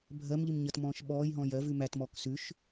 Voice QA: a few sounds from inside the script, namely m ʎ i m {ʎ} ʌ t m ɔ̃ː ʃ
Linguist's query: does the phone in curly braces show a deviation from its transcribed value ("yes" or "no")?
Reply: yes